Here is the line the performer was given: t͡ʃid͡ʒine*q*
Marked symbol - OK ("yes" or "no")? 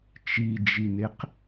yes